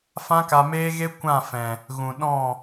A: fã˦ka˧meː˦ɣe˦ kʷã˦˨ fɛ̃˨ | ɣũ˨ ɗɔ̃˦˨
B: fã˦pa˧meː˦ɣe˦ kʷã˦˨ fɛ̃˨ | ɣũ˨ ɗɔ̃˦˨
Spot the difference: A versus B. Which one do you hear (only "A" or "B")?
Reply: A